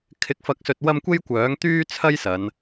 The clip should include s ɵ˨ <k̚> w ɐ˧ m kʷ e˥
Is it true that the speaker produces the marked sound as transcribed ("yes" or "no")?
no